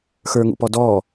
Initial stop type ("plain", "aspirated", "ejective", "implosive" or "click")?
plain